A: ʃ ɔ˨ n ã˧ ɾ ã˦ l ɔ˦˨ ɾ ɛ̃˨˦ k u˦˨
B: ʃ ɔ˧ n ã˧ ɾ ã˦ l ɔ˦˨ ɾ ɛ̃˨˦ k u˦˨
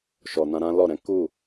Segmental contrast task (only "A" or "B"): A